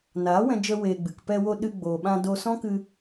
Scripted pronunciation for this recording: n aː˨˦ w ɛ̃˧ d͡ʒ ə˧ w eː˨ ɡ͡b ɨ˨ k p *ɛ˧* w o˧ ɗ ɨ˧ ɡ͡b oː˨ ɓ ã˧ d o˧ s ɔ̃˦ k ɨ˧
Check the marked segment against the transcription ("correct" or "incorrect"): correct